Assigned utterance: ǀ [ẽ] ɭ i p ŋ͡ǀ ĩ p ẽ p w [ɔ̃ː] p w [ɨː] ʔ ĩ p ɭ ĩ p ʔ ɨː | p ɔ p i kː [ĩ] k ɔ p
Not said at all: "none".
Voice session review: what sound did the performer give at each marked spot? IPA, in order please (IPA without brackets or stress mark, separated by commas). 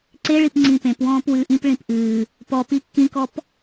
e, ɔ̃ː, ɨː, ĩ